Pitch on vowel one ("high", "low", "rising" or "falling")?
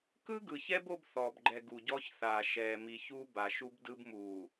high